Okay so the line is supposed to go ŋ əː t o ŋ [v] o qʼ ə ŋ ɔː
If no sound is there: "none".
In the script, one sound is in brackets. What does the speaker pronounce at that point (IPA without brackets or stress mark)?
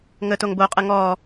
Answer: b